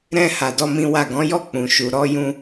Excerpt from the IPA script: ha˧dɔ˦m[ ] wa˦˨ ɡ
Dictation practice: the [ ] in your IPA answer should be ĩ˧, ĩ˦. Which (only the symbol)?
ĩ˦